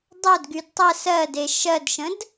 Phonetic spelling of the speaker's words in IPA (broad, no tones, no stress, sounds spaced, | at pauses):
dˤ œ d ɡ y d tˤ ə s ɜ d e ʃ ɜ d ʃ ə̃ d